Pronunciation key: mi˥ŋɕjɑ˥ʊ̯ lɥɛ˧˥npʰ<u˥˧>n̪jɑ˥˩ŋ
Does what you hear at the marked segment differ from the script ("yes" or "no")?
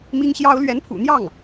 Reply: yes